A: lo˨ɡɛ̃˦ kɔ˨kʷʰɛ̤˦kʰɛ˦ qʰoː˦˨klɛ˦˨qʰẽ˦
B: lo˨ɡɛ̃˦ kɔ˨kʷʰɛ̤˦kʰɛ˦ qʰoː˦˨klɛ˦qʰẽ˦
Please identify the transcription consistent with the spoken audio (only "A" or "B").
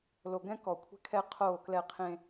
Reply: A